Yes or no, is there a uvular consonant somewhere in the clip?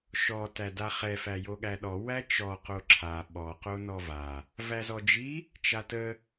yes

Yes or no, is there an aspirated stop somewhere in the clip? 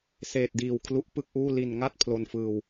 yes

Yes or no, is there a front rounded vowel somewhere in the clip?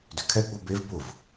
yes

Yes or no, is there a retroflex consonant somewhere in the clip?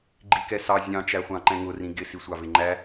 no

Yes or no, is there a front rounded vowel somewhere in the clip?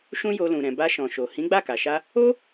no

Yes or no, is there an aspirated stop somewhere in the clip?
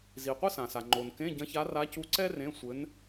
no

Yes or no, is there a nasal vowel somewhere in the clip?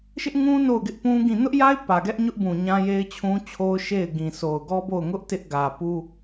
yes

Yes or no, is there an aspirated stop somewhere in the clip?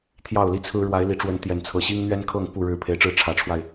yes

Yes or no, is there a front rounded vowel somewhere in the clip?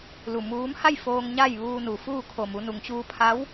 no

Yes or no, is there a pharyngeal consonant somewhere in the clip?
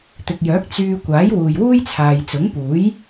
no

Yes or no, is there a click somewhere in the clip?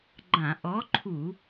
yes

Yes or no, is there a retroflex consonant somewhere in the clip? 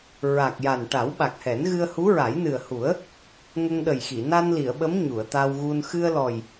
yes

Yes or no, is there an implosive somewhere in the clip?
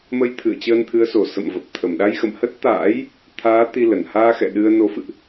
yes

